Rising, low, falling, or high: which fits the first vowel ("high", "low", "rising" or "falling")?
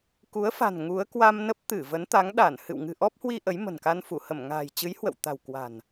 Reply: rising